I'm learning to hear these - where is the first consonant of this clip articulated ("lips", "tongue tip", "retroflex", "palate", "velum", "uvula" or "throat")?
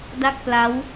tongue tip